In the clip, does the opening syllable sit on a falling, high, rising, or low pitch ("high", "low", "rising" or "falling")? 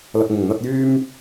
low